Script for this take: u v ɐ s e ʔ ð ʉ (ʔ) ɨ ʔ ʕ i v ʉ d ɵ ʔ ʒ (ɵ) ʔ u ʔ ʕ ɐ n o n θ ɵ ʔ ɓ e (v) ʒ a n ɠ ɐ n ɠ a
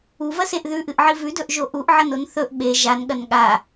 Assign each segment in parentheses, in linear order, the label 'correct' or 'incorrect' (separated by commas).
correct, incorrect, incorrect